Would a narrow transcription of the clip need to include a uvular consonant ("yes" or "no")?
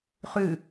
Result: yes